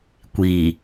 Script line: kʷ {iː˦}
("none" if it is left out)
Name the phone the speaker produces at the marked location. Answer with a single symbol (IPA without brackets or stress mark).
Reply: iː˨